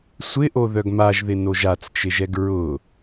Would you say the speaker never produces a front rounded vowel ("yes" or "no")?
no